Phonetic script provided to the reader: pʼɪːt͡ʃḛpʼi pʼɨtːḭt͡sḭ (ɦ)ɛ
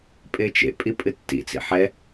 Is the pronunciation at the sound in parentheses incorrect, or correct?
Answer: incorrect